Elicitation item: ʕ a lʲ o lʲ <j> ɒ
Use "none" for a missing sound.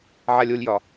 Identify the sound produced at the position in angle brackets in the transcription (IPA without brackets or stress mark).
j